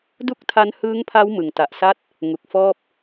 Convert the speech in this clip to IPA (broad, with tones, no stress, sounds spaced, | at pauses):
d u˥˩ k̚ tʰ a˦˥ n h ɯː˦˥ ŋ pʰ a˦˥ w m ɯ˨˩ ŋ t a˨˩ ʔ s a˥˩ t̚ | ŋ u˨˩ k̚ f ɔː˥˩ p̚